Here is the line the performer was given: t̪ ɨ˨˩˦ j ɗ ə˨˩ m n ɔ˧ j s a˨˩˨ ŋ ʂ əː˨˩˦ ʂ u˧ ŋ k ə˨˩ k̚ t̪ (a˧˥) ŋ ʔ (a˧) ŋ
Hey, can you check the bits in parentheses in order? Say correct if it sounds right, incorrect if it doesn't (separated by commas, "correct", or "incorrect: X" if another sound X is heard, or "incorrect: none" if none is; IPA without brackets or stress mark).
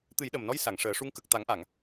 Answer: incorrect: a˨˩˦, incorrect: a˨˩˨